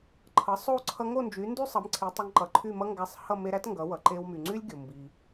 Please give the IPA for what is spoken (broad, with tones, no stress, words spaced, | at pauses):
ǃʰʌ˩˥sˤo˥˩ ǀʰʌ˧ŋo˥˩nd͡ʒy˩˥ndy˥ sˤʌ˩˥m ǀʰi˩˥tˤʌ˧ŋǃʌ˩ǃʰy˥˩ mʌ˥ŋɡæ˧sˤ hʌ˥˩ me˧ɾæ˥t ŋɡʌ˩˥wʌ˩ ǃe˧wmy˩ŋ͡ǀy˥lʲ ɡʲo˩mbi˩